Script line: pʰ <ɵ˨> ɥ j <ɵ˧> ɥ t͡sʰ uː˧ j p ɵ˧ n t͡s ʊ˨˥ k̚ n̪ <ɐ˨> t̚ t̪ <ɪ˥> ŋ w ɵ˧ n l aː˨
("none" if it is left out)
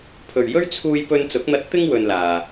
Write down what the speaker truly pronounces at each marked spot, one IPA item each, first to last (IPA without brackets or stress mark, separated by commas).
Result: ɵ˨, ɵ˥, ɐ˧, ɪ˥